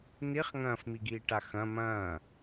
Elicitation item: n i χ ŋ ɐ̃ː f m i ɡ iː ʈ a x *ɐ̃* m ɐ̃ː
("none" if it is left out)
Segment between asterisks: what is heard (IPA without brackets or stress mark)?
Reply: ɐ̃